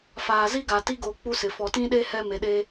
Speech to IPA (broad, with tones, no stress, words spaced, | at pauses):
faː˨zi˦ɡa˨ ti˦ɡoː˨ k͡pu˦sɪ˨ fɔ˨tĩ˦ɗe˦ hɛ˦ me˨ɗeː˦